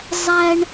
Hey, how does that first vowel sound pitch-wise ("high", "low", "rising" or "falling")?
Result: high